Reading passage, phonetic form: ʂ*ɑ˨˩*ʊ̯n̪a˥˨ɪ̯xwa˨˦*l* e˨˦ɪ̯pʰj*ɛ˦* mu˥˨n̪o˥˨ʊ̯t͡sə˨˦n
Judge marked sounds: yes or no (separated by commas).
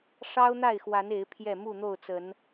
no, no, no